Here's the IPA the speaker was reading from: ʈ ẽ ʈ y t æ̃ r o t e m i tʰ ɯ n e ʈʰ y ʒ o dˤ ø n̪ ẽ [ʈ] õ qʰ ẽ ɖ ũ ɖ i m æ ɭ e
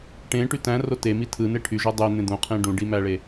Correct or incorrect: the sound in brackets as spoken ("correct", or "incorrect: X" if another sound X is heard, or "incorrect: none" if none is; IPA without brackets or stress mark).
incorrect: d̪